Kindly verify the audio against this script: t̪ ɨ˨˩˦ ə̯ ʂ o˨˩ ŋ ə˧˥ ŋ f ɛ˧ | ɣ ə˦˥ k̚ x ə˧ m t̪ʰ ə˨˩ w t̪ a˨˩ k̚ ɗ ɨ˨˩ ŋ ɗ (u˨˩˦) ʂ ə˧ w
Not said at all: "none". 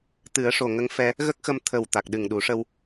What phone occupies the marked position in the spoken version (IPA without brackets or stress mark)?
u˨˩˦